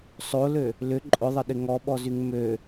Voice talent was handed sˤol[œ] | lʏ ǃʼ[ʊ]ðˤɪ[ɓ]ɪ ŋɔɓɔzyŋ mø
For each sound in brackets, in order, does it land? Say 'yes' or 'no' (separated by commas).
no, yes, no